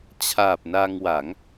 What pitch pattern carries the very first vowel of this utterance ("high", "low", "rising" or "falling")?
low